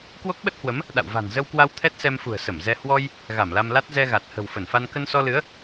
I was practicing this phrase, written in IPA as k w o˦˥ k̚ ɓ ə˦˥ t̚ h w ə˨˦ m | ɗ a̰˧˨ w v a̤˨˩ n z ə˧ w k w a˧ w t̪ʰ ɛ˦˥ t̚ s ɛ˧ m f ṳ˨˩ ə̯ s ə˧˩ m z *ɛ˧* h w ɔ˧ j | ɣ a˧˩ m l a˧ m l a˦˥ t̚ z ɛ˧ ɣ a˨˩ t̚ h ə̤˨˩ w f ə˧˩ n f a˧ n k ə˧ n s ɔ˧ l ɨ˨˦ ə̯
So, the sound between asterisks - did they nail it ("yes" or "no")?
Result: yes